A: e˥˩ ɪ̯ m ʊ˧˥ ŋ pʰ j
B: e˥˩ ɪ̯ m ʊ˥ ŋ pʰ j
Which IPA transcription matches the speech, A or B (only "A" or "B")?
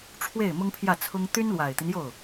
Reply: B